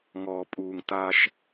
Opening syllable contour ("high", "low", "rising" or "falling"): low